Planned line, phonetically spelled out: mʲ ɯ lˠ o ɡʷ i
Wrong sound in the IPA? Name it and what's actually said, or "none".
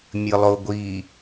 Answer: none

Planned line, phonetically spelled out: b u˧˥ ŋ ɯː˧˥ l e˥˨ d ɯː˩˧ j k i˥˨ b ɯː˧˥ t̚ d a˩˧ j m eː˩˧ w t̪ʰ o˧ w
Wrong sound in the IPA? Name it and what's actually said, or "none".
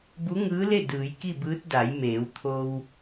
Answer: none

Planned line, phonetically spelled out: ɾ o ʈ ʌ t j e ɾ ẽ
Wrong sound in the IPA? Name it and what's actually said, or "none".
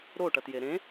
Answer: none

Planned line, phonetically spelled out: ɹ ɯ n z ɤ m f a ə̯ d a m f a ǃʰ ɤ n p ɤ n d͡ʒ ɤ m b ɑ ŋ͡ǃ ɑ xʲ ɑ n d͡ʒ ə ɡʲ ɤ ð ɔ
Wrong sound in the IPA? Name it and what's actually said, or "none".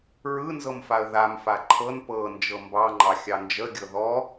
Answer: d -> ð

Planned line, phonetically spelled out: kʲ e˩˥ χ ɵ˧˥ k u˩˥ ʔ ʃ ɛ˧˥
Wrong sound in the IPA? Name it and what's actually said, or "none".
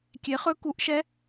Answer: none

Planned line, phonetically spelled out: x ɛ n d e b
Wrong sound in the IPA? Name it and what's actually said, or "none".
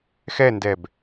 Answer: e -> ɛ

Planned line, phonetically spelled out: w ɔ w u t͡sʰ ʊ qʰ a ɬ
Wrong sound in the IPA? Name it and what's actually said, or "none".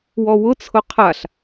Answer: u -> ʊ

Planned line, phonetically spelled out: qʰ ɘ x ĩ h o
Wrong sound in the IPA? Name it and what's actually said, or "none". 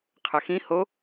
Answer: none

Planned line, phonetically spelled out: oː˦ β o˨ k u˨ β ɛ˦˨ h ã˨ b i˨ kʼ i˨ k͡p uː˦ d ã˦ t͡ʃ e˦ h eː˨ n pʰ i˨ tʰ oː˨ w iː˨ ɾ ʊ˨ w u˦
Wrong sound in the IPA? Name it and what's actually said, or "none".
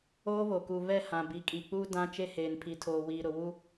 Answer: none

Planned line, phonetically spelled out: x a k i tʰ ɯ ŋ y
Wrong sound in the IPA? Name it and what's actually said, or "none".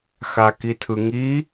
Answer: y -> i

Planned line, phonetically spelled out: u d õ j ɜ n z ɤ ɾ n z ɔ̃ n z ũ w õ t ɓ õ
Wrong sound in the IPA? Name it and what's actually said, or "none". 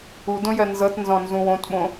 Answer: ɾ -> t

